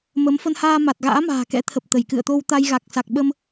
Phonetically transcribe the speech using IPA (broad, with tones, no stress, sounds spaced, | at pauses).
m ə˨˦ m f ə˧ n h aː˧ m a˨˩ t̚ ɣ a̰ː˧˥ m a̤ː˨˩ k ɛ̰˧˥ t̪ʰ ə˨˩ p̚ t̪ ə˧˩ j k ɨ̰˧˨ ə̯ t̪ o˧ w t̪ a˧ j ɣ a˨˩ k̚ s a˨˩ k̚ ɓ ə˧ m